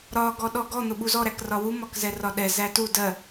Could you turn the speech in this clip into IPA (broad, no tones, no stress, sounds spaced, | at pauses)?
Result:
ɾ ɒ ɡ ɔ ɗ ɔ ɡ ɔ n̪ ʊ ɓ u z ɔ ɾ æ k r ɒ w u m ɒ k z ɛ r ɒ ɗ ɛ z æ t u d ɜ